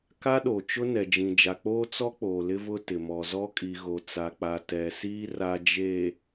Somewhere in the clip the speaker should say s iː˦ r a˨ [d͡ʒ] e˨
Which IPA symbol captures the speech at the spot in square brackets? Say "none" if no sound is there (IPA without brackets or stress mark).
d͡ʒ